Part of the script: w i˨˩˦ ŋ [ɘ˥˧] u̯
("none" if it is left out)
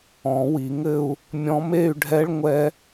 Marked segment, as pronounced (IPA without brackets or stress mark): ɘ˥˧